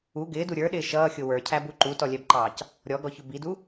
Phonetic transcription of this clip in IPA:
u ɡ ɪː d u ɾʲ ə˞ ɗ ɪː ʃ ʌː xʲ ʊ w ə˞ cʰ æ b u ǃ u t ɔ lʲ ɛ b ǃ ɑː c | ɾʲ ɔ ɡ ɔ ç ʊ b i d u

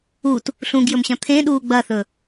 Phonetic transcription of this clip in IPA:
u t | ɬ ũ ɡ j ɵ m ɕ ɐ̃ t̪ʰ ẽ ɗ uː ɡ͡b ɐ θ ɵ

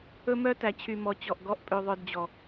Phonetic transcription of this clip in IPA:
ɵ˦ m œ˦ t æ˨ t͡ɕʰ y˨ m ɔ˨ t͡ɕ ɔ˨ ʔ ɡ ɔ˦ ʔ pʼ ø˧ ðˤ œ˧ d d͡ʑ ɔ˨

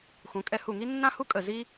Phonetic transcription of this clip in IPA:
x ũ˩˧ kʼ ɛ˧ h u˧˩ ŋ i˥ nː ã˥ h u˥ kʼ ə˧˩ z i˥

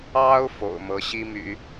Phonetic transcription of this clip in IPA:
ɑ˥ ʊ̯ f o̰˨˩ ʊ̯ m ɤ˧˥ ɕ i˥ m y̰˨˩˦

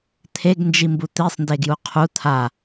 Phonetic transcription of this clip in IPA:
t̪ʰ e ɡ n d͡ʒ i m b u t̪ i sˤ n d e ɡ j u qʰ u t̪ʰ a

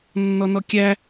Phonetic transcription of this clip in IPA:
nː ɔ n ɔ kʲ æ

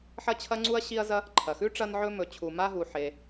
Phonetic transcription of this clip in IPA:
ħ ɐ˥ t͡ɕʰ ɐ˥ ŋ͡ǀ u˥ ɐ̯ ɕ i˥ ɐ̯ z ɐ˥ | ǃʰ ɐ˩ x ʉ˥ ʈ͡ʂ ɐ˥ n ʕ ɵ˥ m ɵ˩ t͡ɕʰ u˩ m a˥ ɦ u˩ ħ e˩

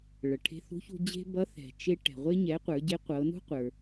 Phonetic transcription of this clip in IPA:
ɭ ɤ˩ ʈʰ e̤˧ θ ṳ˧˥ ç ṳ˧ d͡ʑ e̤˥ b ʌ˧˥ θ ɛ̤˩ t͡ʃ e˧ ʈ ɛ̤˩ ʁʷ e˧ ɲ ɛ˩˧ qʷ ə˞˩˧ ɟ e˧˥ qʷ ɤ˩˧ n ṳ˥ qʷ ə˞˩

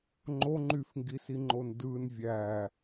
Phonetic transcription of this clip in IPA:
ŋ͡ǃ o ŋ͡ǃ y f ŋ ɡ i s i ŋ͡ǃ o n d ɯ n vʲ æ

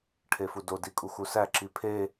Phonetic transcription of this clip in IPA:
ʈʰ e f u d o d i kʼ u x u s æ ǁ i pʰ e

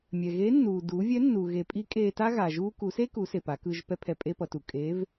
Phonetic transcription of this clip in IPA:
mʲ ɛ˩ ɣ e˧˥ nː uː˩ d uː˩˧ vʲ ɛ˧˥ nː u˩ ɣ e˩˧ pʼ i˧˥ kʼ eː˧ t a˥ ɣ a˩ ʒ uː˧ k u˩˧ s e˥ k u˩˧ s e˩ p a˩˧ k ɯ˧ ʒ p ɛ˥ pʰ ɛ˧ pʼ e˥ p ʌ˩˧ t u˩ kʼ eː˧˥ v

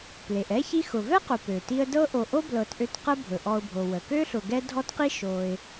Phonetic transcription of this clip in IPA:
p l e˩ ʔ ɛ˥ ç i˦ x ʊ˩ v ɛ˥ q ʊ˩ p ø˩ t i˦ ə̯ d ɤ˥ ʔ o˨ ʔ o˥ b l ɤ˨ t ʔ ø˦ t q ə˦ bʱ ɵ˩ ʔ ɔ˨ ʊ̯ bʱ o˩ w ə˩ k ø˥ ɬ ʊ˨ ɡ ɛ˦ dʱ ɔ˥ t q i˥ ʃ o˨ ɪ̯

